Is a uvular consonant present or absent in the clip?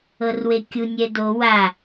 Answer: absent